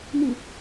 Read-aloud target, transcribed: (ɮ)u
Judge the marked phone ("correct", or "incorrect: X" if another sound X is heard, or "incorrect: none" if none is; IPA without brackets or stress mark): incorrect: n